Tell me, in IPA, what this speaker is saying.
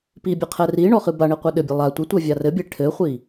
pibʲe qʰɛriɳɔ χɨbaɳi qʷɛɗɘbʲɛ lˠa tʷɘtʷɛ vʲarɘbʲe ʈʰɘχʷi

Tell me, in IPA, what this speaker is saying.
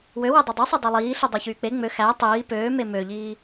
wøwe dˤedˤysˤi dˤylˠiː ɬidˤɑçyːk͡pe ŋ͡mø xæ tˤiː pøːme møʎiː

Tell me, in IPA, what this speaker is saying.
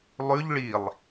lˠʉʎ ɭilˠ

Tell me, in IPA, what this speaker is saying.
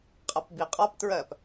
qʼʌpbiqʼɒptɹɜp

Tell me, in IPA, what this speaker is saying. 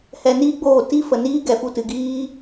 hɛ˧niː˦ɡ͡boː˦˨ ti˦ fə˨niː˦ ɡɛ˨fu˧tɨ˨ɡiː˦

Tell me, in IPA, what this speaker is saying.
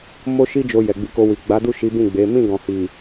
mo˦ʃi˦d͡ʒo˧ jɛ˨ɡ͡bi˧ko˧wi˨ ɡ͡ba˨˦du˦˨ʃi˨˦ bĩ˦˨ɡ͡be˨˦ mĩ˦˨ɡɔ̃˨hi˨

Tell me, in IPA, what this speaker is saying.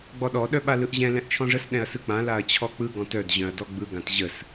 ɡ͡bɔɗɔ ɗœɓalɯʔʑɛ̃ lɛ̃ʔt͡ʃʰɔ̃ʐəs ɗɛ̃ɐ̯sɯk͡pã laɐ̯t͡ɕʰɔk͡pɯ ɡɔ̃tœd ʑœ̃ɐ̯dɔɡ͡bɯ ɡãtʑəs

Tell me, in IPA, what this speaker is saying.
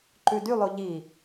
ǃʉdylˠo ʎi

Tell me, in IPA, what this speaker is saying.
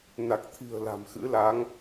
na˨˩k̚t̪ʰi̤˨˩ə̯ la̤˨˩mxɨ̰˧˥laː˨˦ŋ

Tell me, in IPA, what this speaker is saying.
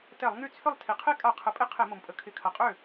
tɛ˧˩˧lˠŋy˥˩ t͡sʰʏ˥˩lˠ tʰi˩qʰe˦˥kʼa˧˩˧ qʰə˩˥pʼɪ˦˥ qʰe˧˩˧mo˩mpʼə˩˥ kʰɪ˩˥kʰɐ˩qʼø˥˩

